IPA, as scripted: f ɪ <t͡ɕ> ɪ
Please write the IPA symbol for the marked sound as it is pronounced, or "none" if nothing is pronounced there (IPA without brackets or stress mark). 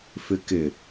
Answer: k